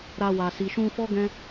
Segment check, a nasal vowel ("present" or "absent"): present